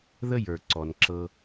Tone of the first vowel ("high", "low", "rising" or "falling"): high